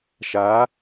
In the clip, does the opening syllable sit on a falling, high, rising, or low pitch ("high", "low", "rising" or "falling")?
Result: rising